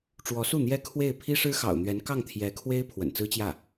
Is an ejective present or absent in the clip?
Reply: absent